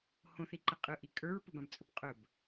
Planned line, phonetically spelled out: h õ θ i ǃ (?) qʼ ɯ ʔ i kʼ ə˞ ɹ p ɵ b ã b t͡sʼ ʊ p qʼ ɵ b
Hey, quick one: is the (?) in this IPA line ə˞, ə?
ə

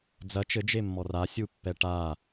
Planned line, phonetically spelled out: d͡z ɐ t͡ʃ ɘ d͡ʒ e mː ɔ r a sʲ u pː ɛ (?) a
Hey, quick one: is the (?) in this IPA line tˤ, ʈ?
ʈ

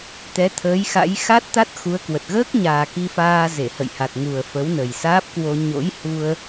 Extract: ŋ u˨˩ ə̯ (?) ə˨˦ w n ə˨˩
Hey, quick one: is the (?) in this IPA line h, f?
f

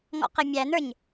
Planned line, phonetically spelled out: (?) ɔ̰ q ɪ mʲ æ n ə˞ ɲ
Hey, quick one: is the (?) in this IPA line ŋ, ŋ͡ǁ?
ŋ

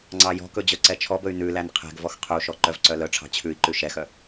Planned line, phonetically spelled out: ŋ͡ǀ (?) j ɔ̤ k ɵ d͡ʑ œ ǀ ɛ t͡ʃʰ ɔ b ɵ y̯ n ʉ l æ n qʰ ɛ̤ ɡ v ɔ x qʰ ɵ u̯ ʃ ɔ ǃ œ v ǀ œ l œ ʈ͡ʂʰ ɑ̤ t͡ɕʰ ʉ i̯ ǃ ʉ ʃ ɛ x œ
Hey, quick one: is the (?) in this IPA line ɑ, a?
ɑ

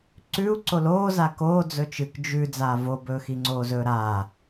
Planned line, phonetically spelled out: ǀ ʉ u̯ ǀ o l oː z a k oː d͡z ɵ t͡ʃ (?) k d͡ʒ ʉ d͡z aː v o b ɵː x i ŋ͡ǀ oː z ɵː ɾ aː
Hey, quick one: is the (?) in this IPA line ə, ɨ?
ɨ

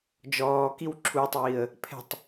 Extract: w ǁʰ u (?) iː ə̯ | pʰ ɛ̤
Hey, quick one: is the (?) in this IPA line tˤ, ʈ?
tˤ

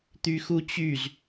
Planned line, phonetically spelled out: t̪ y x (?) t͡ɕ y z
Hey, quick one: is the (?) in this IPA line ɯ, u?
u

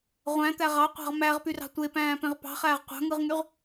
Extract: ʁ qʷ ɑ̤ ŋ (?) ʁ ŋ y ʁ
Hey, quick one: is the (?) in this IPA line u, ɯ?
ɯ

